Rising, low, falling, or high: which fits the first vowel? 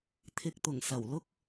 low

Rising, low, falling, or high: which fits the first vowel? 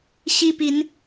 high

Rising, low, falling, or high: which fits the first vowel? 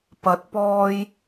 rising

